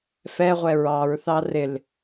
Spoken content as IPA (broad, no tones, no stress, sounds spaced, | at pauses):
f ɛ ʁʷ ɛ ɹ ɑ ɹ θ ɑ r ɪ l